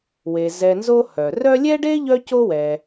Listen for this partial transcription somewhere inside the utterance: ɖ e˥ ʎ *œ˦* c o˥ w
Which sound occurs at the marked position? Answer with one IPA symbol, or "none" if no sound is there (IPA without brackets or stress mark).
œ˦